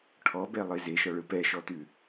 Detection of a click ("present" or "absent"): absent